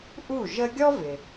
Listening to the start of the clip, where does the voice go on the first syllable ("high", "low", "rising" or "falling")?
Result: falling